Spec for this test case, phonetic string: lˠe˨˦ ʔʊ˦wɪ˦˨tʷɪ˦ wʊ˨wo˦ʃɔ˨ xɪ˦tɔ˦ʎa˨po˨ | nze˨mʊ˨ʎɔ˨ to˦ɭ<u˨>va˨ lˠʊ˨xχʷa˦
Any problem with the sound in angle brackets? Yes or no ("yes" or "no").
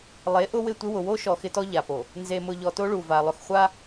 no